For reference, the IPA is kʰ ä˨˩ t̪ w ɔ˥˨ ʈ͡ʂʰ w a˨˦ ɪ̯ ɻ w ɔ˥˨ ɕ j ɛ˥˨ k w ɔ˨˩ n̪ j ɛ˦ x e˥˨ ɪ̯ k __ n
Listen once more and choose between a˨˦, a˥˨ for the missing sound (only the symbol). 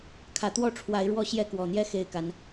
a˨˦